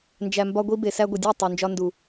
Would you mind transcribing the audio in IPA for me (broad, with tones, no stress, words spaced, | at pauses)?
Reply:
nd͡ʒæ˨mbɒ˧ɡʷi˧ be˨sæ˧ɡʷi˨dʲo˦˨ tˤu˨nd͡ʒɒ˧ndu˨